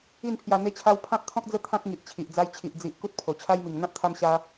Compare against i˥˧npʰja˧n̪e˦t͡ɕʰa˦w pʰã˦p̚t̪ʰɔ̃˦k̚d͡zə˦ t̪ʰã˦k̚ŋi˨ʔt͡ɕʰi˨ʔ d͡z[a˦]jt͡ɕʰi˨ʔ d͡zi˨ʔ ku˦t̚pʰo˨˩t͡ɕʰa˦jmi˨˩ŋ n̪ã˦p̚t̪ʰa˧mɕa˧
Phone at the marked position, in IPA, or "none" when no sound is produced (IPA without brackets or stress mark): a˧